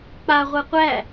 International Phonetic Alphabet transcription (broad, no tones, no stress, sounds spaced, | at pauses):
k͡p a ʁʷ ɛ qʷ æ